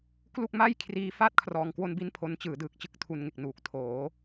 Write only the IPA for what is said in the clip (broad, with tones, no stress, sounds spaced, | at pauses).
k l u˥˩ k̚ m a˥˩ j kʰ r iː˧ f a˥˩ t̚ kʰ r ɔː˧ ŋ k w o˥˩ n b i˥˩ n pʰ o˦˥ n t͡ɕ ɯː˩˦ d ɯː˨˩ k̚ t͡ɕ ɯ˥˩ k̚ tʰ u˧ n ŋ e˨˩ k̚ n uː˨˩ k̚ tʰ oː˩˦